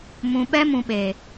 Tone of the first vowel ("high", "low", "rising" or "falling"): low